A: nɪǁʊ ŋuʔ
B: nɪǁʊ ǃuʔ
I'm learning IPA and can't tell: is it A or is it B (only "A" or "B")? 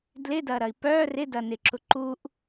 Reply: B